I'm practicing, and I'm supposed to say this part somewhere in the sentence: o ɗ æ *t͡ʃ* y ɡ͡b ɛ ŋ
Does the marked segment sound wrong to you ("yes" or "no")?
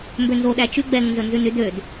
no